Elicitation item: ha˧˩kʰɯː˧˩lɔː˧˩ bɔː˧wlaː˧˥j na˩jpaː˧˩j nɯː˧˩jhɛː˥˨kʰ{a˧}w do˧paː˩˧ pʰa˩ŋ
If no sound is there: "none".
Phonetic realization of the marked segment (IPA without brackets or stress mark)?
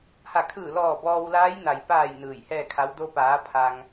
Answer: a˧˥